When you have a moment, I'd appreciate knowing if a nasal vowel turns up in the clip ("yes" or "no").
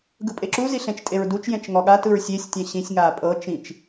yes